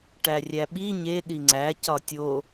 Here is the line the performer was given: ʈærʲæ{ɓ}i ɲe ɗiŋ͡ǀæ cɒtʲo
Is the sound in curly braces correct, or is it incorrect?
correct